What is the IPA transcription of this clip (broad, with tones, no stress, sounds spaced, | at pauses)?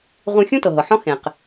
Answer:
ʁ ũ˧ xʲ ũ˥ t ɤ˩ ɦ ɤ˩ ħ ɔ̃˥ x ẽ˩ q